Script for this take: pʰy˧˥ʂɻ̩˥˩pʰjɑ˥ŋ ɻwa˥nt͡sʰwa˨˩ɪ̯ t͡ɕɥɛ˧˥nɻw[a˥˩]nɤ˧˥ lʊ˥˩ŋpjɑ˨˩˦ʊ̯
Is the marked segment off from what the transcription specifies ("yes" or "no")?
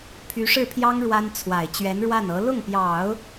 no